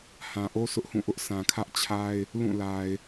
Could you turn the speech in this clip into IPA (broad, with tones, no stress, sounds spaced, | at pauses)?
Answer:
h ã˨ ʔ o˦ s ʊ˦ ʔ h ũ˦˨ ʔ ʊ˦ ʔ s ã˨ kʰ ä˦ ʔ t͡ɕʰ a˦ ɪ̯ | l ũ˦˨ l a˨ ɪ̯